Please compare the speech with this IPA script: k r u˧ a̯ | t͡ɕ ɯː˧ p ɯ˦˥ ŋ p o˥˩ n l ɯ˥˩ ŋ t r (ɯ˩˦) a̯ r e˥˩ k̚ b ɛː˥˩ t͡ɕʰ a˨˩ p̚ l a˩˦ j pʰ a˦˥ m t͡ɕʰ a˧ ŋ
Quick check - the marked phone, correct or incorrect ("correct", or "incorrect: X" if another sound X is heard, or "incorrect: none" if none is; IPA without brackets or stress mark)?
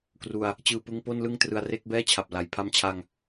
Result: incorrect: ɯ˧